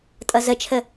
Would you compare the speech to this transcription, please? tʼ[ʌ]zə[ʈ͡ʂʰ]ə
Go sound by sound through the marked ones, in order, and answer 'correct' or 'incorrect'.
correct, incorrect

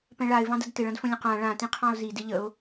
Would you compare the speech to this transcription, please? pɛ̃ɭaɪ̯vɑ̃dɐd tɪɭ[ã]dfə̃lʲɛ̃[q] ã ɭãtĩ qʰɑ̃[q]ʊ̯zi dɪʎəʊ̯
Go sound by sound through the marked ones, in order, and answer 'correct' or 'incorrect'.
incorrect, correct, incorrect

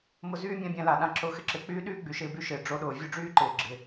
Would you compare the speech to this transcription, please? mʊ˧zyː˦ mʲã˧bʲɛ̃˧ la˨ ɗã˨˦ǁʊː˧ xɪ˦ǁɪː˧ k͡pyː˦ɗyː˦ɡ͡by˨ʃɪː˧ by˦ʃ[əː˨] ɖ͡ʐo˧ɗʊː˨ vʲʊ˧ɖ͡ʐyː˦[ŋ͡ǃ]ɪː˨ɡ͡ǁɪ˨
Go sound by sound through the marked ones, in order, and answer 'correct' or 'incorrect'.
incorrect, incorrect

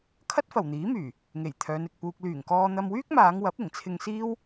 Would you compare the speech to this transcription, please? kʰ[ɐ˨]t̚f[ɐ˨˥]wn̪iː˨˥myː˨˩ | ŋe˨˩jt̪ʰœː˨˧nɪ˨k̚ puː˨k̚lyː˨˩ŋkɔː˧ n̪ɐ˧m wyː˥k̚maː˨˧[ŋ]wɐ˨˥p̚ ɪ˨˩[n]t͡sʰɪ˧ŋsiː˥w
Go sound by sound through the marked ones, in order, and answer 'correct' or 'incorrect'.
incorrect, incorrect, correct, incorrect

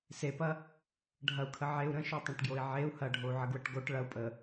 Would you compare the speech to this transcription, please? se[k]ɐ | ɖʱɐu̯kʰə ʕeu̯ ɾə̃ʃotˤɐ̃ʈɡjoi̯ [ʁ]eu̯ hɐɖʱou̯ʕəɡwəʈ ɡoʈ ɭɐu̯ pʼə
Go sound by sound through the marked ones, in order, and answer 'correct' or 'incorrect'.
incorrect, incorrect

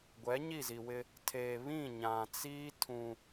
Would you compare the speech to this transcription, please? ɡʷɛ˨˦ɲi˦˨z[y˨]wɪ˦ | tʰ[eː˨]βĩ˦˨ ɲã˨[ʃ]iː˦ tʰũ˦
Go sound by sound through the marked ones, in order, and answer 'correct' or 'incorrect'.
incorrect, incorrect, incorrect

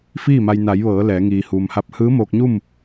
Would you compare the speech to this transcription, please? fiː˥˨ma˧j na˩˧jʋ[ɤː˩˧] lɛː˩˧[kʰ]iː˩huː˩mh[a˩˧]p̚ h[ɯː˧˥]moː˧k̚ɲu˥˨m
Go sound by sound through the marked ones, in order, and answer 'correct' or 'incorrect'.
correct, incorrect, incorrect, correct

